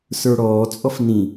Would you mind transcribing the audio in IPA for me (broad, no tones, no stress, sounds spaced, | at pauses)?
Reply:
s ə˞ ɽ ɔː t͡sʼ ɔ f n ĩ